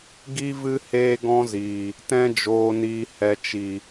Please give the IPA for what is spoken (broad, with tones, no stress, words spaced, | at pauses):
ɡi˧vɨ˧ heː˧ɡɔ̃˧ziː˨ | tɛ̃˧d͡ʒoː˨niː˨ hɛ˨t͡ʃi˨